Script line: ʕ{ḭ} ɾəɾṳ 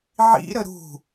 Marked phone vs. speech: correct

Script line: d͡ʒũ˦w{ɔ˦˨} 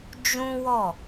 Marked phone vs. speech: correct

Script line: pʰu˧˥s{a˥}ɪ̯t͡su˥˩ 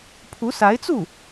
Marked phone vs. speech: incorrect: a˧˥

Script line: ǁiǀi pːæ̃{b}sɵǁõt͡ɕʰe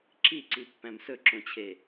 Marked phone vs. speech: incorrect: m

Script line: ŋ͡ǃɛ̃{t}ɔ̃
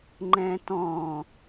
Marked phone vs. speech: correct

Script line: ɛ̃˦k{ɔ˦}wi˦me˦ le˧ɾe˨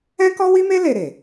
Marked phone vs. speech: correct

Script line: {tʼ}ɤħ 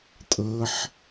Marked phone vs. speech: correct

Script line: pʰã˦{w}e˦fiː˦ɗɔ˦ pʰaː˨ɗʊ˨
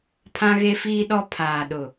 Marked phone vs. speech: incorrect: ɣ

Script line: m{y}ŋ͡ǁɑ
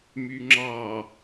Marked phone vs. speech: correct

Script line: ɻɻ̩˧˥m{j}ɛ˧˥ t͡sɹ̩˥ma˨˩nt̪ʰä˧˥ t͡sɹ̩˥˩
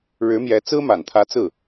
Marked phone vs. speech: correct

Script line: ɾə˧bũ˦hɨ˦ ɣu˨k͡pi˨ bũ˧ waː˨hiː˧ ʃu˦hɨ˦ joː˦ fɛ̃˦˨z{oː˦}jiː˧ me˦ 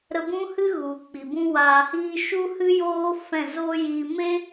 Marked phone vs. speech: correct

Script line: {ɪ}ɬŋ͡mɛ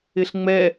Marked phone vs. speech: correct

